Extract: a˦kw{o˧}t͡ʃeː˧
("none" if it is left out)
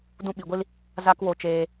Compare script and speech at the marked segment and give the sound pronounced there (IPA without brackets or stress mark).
o˧